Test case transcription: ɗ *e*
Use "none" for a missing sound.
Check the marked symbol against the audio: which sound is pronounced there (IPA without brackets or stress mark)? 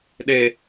e